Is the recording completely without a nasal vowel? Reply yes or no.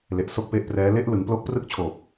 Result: yes